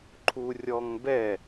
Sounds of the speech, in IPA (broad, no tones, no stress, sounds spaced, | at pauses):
ǃʰ u rʲ ɔ ŋ b ɛ